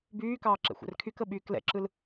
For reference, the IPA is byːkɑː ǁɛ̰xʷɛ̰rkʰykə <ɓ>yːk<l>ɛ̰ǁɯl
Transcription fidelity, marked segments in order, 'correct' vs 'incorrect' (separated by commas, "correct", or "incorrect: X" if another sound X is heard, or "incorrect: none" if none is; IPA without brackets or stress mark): correct, correct